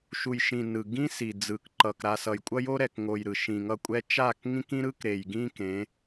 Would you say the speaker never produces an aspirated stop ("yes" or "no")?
yes